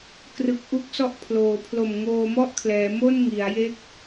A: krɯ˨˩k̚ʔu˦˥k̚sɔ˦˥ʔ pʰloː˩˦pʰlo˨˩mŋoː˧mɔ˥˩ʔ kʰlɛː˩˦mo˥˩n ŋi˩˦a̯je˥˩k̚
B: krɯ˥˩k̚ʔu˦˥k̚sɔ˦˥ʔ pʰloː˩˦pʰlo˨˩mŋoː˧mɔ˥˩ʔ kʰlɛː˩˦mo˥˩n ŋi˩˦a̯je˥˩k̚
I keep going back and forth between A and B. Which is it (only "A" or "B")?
A